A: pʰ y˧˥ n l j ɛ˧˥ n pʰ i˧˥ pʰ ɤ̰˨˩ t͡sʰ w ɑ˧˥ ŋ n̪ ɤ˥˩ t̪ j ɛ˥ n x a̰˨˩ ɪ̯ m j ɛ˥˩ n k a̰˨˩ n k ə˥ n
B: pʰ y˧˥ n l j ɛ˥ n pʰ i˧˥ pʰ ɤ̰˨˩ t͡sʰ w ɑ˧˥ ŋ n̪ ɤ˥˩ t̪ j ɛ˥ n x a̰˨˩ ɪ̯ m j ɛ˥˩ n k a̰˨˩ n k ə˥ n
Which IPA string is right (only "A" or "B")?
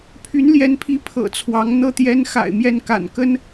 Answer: A